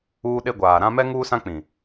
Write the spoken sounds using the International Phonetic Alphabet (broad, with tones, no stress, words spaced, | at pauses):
uː˦ɗe˦ɡʷaː˨ ɾã˦ mɛ˦ ŋuː˦sã˦k͡pĩ˨